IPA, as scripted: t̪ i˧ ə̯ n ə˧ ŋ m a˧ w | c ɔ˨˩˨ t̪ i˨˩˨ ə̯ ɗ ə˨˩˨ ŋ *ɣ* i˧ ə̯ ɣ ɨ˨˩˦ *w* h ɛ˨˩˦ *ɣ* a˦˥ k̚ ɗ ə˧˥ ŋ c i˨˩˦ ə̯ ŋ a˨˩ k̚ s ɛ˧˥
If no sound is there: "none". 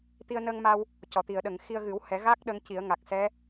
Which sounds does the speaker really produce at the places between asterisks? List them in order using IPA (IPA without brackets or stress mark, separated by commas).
x, w, ɣ